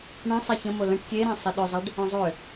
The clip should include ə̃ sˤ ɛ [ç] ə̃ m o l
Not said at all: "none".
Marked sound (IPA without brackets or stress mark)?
ç